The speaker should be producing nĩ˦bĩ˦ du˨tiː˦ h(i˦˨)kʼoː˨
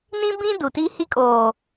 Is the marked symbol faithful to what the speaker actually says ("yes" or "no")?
no